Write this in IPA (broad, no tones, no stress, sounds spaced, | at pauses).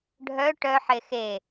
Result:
ɖʱ œ ʈ œ ħ e x e